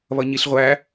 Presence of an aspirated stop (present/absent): absent